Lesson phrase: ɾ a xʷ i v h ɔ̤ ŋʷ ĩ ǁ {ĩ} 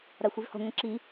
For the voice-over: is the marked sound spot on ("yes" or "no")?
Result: no